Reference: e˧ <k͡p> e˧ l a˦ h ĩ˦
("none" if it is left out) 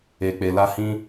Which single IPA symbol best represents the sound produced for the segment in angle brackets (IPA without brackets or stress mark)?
k͡p